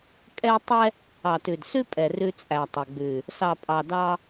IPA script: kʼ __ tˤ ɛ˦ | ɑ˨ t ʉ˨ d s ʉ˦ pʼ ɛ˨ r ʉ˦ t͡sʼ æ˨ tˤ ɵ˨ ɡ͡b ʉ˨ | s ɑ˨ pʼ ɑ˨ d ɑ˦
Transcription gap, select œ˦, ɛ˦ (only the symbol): ɛ˦